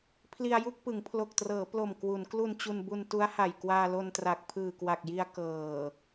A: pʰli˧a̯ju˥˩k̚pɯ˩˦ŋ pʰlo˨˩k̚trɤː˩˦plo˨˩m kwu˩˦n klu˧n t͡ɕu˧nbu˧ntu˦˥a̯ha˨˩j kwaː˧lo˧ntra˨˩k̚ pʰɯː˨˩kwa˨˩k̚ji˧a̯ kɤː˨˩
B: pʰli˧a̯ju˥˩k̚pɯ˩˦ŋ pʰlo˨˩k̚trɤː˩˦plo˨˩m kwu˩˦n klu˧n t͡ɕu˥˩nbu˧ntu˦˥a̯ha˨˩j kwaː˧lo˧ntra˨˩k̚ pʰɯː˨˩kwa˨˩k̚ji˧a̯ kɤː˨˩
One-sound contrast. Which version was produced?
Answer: A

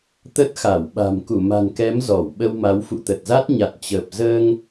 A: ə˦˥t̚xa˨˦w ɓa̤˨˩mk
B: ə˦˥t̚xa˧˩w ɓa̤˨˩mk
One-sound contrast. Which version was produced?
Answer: B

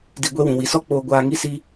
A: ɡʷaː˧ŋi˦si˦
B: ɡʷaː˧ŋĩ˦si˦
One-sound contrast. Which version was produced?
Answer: A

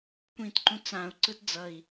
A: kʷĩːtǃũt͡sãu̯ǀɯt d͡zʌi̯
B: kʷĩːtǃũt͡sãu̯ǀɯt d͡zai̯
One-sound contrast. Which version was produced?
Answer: A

